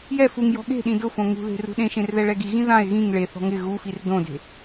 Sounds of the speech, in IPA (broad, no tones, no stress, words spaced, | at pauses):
jɛ fuŋjɔ̤ ɠe̤ɗĩ dʊfõ ŋṳðe̤ rṳɗẽʃẽr ðɛɭɛɡiɣĩ ðãe̯ ɣĩŋ ɭeθɔ̤ ŋɪ ɣufir dõde̤